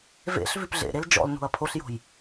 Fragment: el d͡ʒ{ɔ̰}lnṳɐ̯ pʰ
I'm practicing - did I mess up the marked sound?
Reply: no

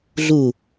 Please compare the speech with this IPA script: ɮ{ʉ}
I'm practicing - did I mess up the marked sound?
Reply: yes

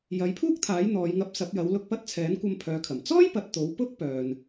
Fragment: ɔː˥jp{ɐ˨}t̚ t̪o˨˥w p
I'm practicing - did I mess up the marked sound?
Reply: no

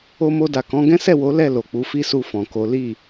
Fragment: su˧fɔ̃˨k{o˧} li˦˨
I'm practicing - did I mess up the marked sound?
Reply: yes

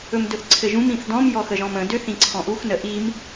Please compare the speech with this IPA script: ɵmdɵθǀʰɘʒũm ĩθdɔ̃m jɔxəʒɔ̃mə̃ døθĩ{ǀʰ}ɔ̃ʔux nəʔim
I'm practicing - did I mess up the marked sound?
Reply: no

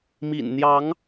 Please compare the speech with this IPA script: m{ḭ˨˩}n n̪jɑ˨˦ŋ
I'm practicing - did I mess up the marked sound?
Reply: no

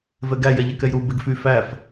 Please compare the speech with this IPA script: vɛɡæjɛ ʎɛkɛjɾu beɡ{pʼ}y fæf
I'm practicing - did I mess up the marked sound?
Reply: yes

